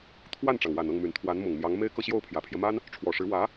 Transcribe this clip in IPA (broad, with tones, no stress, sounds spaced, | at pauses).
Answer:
t̪ʰ w a˥˩ n ʈ͡ʂ ɑ˩ ŋ w a˨˩ n ɤ˥˩ ŋ m y˨˩ n t̪ʰ w a˧˥ n m ʊ˨˩ ŋ m j ɑ˧˥ ŋ m e˥ ɪ̯ k ɤ˥˧ ɕ j o˥˩ ʊ̯ pʰ j ä˨˩ pʰ j ɛ˦ m a˥ n | ʈ͡ʂʰ w ɔ˨˩ ʂ ɻ̩˧˥ w ä˧˥